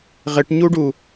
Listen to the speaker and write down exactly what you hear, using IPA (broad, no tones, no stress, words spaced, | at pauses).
ʁɪʈɲuɖu